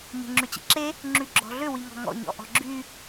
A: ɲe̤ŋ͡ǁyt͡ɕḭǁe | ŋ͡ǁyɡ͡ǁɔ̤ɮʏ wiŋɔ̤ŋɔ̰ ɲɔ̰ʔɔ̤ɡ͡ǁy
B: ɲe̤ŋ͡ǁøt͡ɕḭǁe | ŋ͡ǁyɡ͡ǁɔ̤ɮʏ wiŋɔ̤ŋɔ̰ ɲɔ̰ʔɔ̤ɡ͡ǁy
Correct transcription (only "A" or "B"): A